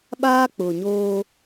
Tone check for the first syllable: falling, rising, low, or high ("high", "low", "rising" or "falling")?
high